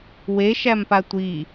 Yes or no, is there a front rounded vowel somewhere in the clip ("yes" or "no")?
no